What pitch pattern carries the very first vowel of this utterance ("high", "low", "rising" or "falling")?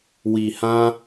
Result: low